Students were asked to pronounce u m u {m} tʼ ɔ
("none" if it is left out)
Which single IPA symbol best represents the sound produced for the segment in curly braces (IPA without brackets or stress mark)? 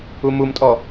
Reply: m